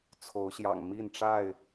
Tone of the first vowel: rising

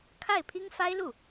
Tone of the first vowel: falling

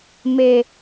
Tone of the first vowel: low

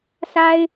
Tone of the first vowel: high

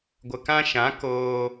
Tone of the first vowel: low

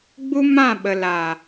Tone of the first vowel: high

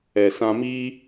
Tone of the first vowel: low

